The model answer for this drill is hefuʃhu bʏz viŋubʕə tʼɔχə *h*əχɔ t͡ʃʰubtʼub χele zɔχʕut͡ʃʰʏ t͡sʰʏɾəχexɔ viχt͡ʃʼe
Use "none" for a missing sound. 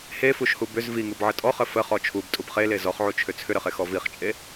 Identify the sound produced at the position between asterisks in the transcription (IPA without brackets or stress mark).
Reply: f